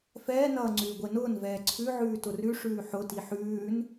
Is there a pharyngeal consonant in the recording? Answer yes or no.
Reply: yes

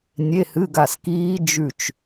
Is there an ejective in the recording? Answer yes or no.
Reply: no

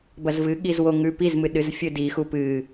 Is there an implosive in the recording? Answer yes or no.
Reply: yes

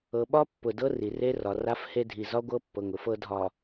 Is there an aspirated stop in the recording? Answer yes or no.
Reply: no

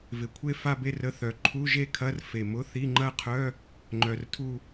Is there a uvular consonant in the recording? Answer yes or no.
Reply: yes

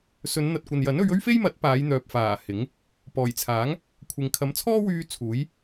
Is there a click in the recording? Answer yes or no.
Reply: no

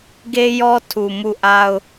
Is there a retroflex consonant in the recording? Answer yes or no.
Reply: no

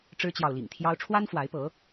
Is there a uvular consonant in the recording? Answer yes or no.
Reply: no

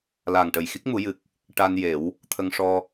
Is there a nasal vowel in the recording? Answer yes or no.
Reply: no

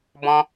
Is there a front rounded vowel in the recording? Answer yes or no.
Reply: no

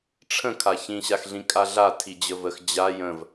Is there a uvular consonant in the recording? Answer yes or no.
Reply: no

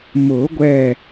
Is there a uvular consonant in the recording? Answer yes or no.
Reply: no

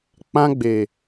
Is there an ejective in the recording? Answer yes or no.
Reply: no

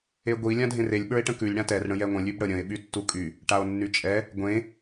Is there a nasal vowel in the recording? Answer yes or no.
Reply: yes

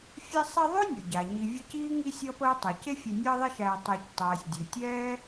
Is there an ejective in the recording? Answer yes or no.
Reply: no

